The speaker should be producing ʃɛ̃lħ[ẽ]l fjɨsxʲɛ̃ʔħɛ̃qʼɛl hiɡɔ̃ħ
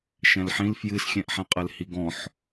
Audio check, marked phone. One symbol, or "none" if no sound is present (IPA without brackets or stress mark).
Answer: ĩ